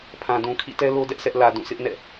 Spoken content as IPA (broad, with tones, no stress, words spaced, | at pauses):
pʰã˨dũ˨ kʰḭ˦˨tɛ˦lo˦ dɛ˦ʔsɛ˦ʔ lä˨ dũ˦˨sʰɪ˦ʔnɛ̰˦˨